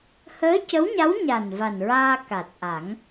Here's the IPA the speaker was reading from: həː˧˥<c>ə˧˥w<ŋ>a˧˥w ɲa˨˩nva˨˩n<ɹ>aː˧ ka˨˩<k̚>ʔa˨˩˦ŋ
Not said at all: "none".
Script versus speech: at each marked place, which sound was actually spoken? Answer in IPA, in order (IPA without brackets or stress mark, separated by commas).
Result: c, ɲ, ɹ, t̚